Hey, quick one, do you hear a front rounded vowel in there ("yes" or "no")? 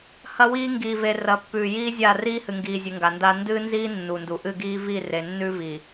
no